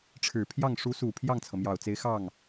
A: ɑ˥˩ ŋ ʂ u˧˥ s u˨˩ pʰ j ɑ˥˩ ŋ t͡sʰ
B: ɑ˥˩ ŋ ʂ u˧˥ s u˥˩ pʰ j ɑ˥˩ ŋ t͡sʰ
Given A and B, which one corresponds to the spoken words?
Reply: A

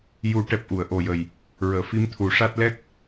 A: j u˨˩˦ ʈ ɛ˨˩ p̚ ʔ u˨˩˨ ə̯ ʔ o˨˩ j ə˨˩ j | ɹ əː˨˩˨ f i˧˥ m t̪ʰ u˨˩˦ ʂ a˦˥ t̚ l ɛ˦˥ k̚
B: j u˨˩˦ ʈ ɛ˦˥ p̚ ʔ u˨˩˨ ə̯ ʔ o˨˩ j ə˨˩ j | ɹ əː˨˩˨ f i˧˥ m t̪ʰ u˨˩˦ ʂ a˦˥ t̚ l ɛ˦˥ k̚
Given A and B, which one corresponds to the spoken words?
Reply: A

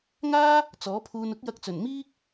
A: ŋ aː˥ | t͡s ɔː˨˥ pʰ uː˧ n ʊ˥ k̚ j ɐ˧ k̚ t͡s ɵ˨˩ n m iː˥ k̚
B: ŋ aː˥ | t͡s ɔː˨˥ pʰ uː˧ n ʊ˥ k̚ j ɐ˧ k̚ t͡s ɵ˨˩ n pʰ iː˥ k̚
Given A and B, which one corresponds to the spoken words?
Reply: A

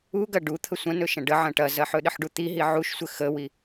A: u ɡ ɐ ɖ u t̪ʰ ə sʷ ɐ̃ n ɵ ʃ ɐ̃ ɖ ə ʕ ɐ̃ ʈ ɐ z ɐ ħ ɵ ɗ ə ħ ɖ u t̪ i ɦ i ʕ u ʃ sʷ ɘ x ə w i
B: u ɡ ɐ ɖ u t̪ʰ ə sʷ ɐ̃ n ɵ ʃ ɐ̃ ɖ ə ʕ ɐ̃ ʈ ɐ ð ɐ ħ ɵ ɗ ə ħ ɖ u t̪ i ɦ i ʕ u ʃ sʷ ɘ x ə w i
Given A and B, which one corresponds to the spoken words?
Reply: A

